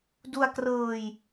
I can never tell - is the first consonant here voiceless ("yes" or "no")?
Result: no